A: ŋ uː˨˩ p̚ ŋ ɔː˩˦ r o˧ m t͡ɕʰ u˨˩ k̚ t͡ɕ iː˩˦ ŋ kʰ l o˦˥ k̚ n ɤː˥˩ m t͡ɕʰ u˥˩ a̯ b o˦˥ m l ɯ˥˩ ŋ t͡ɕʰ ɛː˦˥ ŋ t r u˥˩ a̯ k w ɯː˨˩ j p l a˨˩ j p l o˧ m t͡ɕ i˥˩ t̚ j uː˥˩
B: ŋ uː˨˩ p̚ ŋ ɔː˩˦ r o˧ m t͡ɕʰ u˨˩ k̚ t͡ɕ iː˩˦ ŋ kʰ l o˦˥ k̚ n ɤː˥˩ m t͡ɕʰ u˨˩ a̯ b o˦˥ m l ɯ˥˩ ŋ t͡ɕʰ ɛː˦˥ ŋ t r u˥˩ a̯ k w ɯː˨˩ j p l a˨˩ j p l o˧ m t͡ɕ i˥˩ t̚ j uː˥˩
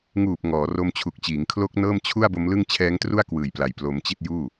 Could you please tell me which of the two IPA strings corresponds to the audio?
A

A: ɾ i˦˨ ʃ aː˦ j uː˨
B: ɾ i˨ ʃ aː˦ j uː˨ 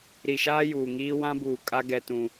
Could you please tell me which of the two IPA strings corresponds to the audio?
B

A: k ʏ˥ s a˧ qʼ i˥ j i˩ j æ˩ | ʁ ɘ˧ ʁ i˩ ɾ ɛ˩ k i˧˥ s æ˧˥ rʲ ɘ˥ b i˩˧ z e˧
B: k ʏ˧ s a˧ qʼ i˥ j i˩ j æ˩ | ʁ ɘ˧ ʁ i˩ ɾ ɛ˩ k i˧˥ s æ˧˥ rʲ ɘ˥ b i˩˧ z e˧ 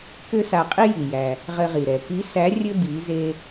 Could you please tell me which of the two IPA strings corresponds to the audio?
A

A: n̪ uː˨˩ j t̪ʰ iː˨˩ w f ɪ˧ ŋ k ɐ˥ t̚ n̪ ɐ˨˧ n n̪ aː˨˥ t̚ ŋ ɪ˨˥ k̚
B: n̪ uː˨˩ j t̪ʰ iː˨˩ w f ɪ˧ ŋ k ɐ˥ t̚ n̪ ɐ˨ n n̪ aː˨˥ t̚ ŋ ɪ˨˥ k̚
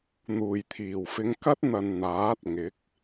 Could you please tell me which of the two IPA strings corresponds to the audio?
B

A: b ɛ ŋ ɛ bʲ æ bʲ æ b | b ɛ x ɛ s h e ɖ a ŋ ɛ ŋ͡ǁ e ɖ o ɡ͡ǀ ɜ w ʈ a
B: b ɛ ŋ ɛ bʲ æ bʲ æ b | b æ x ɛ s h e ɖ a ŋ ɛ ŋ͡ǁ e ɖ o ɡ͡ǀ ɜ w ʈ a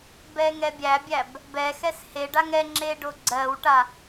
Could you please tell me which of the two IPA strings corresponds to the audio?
A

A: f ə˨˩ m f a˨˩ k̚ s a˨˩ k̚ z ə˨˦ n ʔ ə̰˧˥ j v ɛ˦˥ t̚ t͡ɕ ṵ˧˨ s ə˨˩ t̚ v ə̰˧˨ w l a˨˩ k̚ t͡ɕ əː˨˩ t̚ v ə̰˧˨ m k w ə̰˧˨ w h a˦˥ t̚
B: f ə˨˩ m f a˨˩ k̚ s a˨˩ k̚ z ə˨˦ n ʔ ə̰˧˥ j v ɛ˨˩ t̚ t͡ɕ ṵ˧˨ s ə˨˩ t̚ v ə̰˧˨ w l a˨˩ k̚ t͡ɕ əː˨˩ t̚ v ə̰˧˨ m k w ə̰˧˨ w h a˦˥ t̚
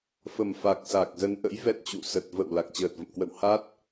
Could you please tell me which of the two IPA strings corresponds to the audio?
A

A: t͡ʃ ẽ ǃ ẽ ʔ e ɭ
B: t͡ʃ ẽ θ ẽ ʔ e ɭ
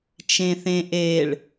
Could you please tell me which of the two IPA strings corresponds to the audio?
B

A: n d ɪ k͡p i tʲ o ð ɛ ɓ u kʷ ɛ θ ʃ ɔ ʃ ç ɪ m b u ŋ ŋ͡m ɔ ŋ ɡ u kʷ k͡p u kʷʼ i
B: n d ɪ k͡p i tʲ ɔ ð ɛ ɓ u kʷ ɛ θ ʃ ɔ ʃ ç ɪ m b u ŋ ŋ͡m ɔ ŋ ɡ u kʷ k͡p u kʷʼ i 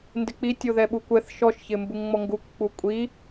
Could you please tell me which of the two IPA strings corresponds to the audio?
A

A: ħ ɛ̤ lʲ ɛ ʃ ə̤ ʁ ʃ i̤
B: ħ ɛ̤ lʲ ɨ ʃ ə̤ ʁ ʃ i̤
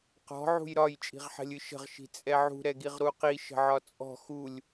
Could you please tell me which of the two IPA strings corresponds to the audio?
B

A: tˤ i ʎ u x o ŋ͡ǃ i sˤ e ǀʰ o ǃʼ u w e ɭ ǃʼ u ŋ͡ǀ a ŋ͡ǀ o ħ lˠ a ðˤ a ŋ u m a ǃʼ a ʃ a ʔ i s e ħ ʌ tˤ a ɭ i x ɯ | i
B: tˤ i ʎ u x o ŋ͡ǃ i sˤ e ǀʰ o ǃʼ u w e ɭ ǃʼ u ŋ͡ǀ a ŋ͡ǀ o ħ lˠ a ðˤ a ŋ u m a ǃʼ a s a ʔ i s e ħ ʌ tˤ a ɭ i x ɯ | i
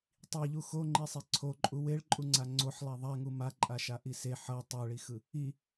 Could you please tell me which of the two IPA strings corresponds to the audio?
A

